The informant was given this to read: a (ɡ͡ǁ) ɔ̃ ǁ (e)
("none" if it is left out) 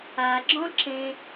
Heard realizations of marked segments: ɡ͡ǁ, ẽ

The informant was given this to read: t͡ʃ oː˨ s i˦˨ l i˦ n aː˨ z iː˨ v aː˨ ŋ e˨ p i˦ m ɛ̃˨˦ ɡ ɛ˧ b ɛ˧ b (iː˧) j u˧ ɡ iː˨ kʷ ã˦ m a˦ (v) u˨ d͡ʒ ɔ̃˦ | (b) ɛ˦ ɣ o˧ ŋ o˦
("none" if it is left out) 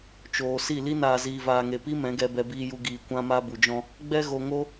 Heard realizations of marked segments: iː˧, b, ɡ͡b

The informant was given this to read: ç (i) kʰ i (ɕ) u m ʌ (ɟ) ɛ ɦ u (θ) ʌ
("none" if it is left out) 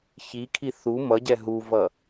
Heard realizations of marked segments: i, θ, ɟ, v

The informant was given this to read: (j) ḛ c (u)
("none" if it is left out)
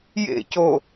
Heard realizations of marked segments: j, o

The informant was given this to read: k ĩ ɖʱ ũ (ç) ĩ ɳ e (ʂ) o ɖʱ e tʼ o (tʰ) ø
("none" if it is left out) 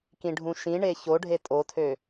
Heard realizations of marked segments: ʃ, ç, tʰ

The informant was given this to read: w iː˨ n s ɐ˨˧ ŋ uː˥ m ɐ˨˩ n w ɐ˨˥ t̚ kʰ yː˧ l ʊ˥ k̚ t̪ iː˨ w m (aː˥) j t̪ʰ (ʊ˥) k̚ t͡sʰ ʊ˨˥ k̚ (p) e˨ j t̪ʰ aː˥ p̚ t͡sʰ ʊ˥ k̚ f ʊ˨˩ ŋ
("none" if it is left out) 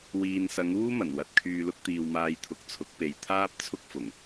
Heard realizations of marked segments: aː˧, ʊ˨˥, p

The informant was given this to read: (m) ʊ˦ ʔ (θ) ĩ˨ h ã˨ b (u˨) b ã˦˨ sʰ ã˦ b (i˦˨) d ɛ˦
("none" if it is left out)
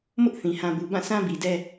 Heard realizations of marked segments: m, θ, u˨, i˨

